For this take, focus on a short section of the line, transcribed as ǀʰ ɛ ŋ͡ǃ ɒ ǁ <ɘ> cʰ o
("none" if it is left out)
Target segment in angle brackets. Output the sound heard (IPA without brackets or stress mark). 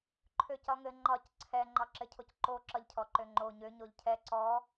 ɘ